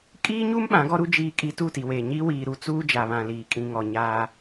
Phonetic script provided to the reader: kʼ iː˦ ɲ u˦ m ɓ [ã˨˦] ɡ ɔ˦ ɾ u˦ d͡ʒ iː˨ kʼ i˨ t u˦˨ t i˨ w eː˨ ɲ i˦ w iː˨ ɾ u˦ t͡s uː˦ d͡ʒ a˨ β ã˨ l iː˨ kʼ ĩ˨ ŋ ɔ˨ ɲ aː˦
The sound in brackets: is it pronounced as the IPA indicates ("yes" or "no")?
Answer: yes